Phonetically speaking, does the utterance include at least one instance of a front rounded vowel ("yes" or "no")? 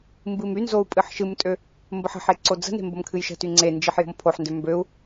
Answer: yes